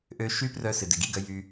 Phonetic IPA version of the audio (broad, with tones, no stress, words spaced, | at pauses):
ʔø˧ ʃy˦prœ˧ sɪ˨dɪ˨ɡi˦˨ɡœ˧ jy˧